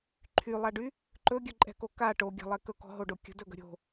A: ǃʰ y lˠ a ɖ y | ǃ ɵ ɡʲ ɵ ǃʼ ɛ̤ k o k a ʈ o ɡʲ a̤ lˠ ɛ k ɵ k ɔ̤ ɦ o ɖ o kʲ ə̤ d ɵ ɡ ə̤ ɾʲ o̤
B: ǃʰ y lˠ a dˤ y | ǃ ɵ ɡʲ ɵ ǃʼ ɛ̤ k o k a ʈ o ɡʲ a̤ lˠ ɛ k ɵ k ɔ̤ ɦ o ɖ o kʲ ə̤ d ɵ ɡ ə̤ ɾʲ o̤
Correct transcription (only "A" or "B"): A